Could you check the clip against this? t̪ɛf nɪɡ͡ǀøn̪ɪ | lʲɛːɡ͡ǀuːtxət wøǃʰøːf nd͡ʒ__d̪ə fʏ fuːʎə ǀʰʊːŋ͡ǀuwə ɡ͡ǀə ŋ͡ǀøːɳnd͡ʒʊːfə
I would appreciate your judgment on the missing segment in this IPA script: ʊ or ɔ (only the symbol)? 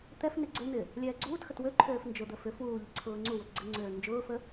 ʊ